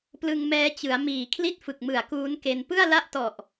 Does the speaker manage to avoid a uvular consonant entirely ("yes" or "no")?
yes